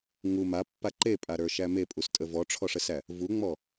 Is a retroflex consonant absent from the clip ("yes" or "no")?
no